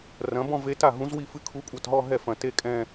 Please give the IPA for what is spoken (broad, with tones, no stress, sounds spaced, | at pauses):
r ɐ̃˩˥ b ɔ̃˥˧ v e˧˥ t a˥˩ ɦ ũ˧˥ z w i˥˩ f ɨ˥˩ kʰ u˧˥ kʷʼ ɐ˥˩ t ɦ ɔ˥˧ ɦ ɛ˥˩ f ɐ̃˧˩ t e˥˧ kʼ ɛ̃˥˧